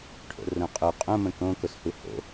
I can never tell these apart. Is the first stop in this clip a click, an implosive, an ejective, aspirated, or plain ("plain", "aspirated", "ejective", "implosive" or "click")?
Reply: aspirated